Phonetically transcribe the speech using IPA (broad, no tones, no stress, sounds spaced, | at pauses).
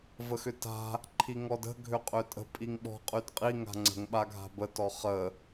v ə x ʏ t a̤ | ǃʰ i ŋ ɔ d ə̤ ɡʱ ø qʼ ø tʼ ə̤ pʼ i ŋ ɓ ɔ̤ qʼ y d qʼ i ŋ a̤ ŋ͡ǀ ə̤ ŋ ɓ a ɡʱ a̤ b ə t ɔ χ ə